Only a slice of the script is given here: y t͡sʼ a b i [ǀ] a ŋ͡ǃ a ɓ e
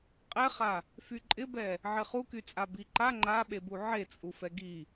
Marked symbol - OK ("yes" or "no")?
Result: no